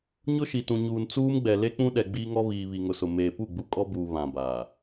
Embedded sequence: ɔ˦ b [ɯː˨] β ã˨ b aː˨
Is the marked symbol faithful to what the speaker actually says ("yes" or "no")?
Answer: no